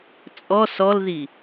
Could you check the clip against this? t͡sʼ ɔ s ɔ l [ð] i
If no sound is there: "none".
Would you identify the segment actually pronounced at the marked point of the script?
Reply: ð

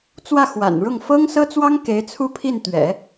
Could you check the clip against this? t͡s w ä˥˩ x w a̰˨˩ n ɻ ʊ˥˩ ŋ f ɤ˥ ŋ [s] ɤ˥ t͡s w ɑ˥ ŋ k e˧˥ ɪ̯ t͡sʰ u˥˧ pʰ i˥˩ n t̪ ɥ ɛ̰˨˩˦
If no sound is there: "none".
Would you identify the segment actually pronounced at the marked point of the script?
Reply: s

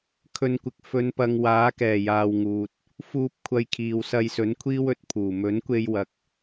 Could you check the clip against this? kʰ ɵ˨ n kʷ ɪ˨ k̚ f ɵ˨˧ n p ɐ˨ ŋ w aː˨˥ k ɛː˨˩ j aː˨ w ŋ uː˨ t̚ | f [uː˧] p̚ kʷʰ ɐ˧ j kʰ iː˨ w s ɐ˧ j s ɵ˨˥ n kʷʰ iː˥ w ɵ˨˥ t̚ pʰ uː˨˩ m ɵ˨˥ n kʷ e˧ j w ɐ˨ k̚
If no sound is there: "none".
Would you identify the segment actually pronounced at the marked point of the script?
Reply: uː˧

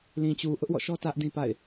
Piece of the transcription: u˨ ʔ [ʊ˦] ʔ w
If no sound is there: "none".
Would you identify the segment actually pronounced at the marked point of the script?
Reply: ʊ˦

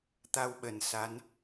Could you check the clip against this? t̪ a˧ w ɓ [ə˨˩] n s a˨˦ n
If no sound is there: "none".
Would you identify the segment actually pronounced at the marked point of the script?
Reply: ə˨˩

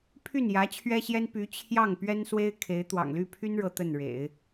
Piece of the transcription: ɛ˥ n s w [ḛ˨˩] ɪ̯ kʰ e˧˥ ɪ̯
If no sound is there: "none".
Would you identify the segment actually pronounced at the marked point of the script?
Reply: e˥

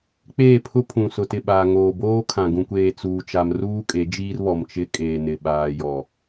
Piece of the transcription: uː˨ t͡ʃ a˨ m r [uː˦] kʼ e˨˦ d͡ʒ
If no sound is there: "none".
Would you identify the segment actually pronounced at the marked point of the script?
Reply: uː˦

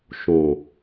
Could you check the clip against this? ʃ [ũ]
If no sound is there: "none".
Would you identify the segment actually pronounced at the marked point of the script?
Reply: õ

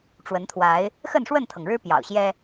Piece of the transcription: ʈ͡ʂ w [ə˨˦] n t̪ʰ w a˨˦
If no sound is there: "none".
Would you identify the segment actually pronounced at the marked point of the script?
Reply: ə˨˦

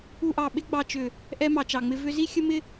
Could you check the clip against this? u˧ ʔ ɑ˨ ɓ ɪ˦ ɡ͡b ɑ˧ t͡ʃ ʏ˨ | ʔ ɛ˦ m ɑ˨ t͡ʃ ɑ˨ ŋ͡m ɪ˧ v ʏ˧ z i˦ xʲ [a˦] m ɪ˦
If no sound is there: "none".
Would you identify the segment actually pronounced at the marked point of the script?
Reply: ə˦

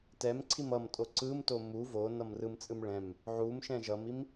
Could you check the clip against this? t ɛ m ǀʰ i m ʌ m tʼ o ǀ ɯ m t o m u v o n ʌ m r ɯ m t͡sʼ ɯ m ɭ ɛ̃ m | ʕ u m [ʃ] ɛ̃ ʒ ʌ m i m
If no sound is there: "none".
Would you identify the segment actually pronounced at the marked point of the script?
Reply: ʃ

